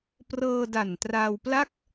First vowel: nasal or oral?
oral